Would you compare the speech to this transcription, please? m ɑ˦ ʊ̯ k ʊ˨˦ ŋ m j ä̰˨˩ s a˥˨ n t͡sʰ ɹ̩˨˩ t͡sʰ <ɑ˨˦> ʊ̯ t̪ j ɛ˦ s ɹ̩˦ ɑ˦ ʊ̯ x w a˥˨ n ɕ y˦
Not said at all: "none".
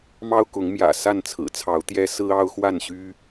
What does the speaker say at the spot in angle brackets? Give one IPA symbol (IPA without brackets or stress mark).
ɑ˨˦